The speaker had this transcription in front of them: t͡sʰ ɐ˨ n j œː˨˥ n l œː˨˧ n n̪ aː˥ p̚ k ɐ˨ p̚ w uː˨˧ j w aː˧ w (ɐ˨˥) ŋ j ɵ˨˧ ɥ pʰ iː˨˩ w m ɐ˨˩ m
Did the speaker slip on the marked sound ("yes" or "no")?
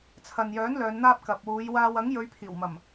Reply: no